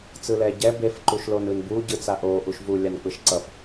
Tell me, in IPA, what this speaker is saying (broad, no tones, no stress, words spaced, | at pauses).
t͡sɯlɛ ɟɛ bef ǃuʃlonɯnbu ɟɯt͡saʔo ʔuʃvu lʲank͡pɯʃǀʌf